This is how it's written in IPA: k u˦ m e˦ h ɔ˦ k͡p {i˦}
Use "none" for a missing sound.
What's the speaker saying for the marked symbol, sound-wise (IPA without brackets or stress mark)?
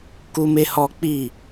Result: i˦˨